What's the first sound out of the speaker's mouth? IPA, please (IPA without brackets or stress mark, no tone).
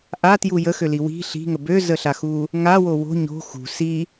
ʔ